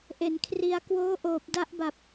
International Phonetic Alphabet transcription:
ʔ e˨˩ n kʰ r i˧ a̯ k w oː˦˥ ʔ oː˨˩ p̚ d a˦˥ ʔ b a˨˩ p̚

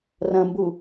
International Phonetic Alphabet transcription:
r ɐ̃ m b u

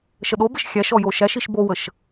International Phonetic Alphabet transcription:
ʃ ə ɗ o b ɘ ʃ xʲ æ ʃ ɔ j o ʃ æ ʃ i ʃ b o w ə ʃ

